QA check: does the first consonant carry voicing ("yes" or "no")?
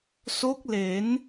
no